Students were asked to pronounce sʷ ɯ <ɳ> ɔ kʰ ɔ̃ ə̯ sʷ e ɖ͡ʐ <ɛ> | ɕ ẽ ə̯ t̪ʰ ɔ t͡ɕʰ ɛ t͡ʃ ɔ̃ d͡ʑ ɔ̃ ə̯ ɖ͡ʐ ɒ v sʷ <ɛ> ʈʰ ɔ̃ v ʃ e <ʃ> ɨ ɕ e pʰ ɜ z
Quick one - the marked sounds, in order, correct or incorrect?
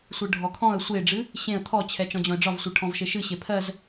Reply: incorrect, incorrect, incorrect, correct

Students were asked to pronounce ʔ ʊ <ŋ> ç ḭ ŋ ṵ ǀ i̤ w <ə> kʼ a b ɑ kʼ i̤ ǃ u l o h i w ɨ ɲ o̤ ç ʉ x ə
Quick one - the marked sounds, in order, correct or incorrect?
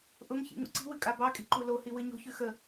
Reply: correct, incorrect

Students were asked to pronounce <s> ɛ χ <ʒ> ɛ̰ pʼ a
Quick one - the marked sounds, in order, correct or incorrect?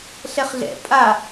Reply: incorrect, incorrect

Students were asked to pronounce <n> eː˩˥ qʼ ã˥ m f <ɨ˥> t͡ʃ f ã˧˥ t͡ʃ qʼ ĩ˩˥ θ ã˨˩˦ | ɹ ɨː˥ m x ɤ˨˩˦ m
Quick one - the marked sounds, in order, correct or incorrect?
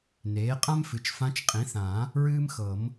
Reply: correct, incorrect

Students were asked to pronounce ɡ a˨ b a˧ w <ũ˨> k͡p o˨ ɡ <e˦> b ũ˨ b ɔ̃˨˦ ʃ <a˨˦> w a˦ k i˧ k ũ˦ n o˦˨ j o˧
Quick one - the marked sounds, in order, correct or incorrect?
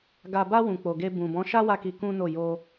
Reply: correct, incorrect, incorrect

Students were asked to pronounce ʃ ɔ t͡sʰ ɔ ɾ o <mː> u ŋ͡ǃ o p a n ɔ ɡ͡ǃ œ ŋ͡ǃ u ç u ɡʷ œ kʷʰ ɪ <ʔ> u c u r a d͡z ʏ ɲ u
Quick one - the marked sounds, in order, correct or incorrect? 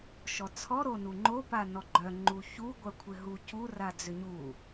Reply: incorrect, incorrect

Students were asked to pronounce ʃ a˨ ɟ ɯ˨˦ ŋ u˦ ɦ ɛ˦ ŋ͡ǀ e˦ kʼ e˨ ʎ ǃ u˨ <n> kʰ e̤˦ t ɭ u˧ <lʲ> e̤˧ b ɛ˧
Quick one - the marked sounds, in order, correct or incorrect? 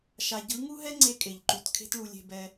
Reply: incorrect, correct

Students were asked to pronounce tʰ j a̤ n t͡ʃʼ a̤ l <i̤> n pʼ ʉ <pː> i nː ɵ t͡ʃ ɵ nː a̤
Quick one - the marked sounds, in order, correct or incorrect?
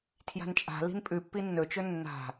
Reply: correct, correct

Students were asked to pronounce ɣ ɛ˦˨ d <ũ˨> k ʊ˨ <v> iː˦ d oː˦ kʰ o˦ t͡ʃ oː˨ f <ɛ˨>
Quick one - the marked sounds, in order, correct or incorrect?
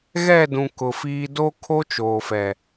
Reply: correct, incorrect, correct

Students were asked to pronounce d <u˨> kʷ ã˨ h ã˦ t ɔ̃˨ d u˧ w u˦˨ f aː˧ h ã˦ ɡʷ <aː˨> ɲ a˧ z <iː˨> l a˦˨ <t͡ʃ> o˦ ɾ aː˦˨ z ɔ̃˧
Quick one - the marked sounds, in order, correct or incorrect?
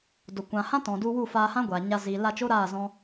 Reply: incorrect, correct, correct, correct

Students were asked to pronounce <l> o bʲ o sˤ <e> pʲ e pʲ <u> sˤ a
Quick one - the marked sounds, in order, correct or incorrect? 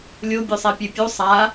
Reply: incorrect, incorrect, correct

